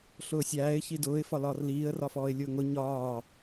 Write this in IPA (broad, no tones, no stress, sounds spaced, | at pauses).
ɬ ʊː sʲ æː ɪ̯ ç i d ʊː ɪ̯ f ɒ l ɒː r l iː ə̯ r ɒ f ɔː ɪ̯ lʲ ʊː ŋ ʊ ɲ ɒː